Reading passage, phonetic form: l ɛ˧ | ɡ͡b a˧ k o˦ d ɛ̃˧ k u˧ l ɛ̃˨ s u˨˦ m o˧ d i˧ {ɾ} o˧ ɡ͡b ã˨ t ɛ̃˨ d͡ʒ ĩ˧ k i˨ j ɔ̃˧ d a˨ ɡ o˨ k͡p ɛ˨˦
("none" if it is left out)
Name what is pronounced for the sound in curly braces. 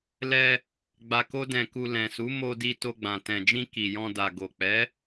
t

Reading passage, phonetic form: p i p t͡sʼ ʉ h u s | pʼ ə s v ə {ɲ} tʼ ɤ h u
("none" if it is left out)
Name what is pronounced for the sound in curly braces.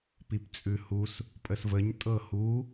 ɲ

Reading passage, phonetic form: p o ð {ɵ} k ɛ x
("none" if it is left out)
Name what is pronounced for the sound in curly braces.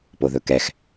ɵ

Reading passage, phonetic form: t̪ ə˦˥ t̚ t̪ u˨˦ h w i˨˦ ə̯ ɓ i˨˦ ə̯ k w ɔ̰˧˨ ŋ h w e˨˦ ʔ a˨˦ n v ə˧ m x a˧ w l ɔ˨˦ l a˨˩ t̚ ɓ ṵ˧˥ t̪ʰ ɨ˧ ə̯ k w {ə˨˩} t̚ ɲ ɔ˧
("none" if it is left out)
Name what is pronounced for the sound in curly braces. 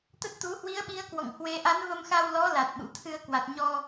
a˨˩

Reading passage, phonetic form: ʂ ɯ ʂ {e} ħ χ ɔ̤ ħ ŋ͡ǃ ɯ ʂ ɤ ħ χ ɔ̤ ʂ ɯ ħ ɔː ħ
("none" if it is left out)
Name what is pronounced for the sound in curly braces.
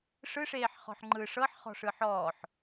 eː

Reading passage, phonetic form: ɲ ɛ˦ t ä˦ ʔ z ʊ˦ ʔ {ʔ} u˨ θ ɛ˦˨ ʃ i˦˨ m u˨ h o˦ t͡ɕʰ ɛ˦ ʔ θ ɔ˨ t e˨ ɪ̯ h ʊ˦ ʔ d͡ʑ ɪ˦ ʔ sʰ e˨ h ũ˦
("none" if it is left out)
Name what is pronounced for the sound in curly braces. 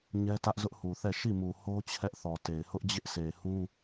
h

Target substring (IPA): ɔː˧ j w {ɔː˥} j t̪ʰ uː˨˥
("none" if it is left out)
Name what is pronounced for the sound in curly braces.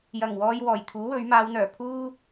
ɔː˨˩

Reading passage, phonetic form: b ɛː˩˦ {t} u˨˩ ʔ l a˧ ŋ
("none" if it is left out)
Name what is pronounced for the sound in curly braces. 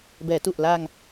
t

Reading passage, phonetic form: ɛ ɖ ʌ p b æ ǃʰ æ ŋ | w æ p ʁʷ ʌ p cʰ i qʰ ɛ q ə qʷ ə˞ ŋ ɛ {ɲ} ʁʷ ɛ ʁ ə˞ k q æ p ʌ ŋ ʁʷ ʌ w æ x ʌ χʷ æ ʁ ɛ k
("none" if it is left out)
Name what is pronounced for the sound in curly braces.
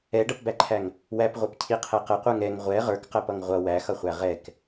ŋ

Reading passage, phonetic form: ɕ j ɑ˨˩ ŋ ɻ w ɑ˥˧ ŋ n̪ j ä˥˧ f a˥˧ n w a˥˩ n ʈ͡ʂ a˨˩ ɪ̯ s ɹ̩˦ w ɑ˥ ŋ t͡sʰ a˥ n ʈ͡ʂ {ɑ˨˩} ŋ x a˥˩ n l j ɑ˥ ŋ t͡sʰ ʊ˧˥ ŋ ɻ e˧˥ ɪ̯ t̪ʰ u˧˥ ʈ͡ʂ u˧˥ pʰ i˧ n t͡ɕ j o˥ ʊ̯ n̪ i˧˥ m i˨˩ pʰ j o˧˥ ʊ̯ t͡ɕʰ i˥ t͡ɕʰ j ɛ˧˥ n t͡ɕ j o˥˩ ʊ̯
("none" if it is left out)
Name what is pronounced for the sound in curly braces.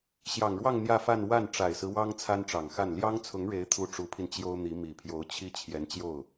ɑ˨˩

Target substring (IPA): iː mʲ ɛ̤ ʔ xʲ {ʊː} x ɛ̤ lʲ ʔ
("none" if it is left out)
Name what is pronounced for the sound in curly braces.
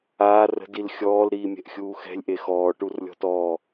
uː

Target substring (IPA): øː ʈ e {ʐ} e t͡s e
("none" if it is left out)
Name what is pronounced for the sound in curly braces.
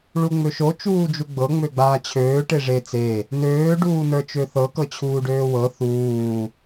ʐ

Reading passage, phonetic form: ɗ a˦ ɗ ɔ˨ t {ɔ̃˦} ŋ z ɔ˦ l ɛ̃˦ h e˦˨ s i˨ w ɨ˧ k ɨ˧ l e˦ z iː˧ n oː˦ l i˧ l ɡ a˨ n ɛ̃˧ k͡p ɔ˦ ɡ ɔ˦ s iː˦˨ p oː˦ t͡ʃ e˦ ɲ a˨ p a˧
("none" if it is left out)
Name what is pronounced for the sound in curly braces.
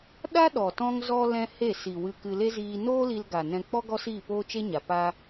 ɔ̃˦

